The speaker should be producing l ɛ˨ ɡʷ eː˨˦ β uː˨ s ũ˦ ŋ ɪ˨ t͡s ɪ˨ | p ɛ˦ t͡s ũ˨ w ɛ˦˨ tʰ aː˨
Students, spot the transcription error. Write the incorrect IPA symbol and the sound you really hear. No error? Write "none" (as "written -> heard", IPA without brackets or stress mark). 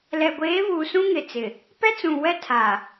none